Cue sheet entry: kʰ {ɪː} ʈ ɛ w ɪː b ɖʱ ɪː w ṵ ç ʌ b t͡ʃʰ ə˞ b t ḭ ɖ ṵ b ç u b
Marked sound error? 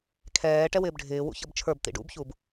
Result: yes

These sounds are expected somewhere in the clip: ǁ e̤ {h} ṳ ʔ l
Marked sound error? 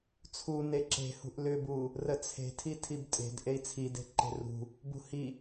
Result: no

